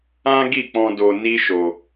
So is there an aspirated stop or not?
no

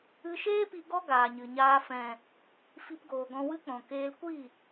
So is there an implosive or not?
no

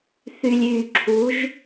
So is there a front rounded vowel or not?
yes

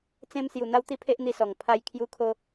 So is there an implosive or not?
no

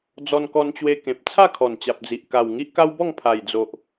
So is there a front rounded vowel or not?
no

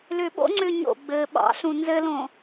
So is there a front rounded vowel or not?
yes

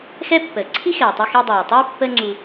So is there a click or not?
yes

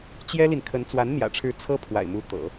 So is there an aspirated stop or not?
yes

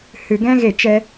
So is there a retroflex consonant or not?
no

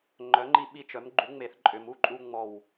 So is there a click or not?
yes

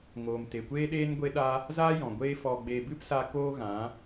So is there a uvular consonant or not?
no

